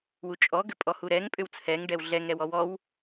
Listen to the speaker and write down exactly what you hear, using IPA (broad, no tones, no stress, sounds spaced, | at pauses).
w u t͡ʃʼ ɔ ɡ ʏ pʼ ɔ h u ɾ ɛ ŋ pʼ ʏ w t͡sʰ ɛ ŋ ɖ ɛ w ɮ ɛ ŋ ɾ ɛ w ɔ w ɔ w